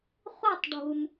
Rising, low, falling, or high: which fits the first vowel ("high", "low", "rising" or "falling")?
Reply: falling